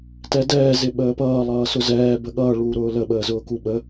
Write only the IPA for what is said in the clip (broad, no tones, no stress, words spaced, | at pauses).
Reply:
tɛdɛː zɪɓəːpʌː lˠʌːsʊzɛː bəɠʌː ɭuːɾʊːlə ɓəːzʊːkuɓə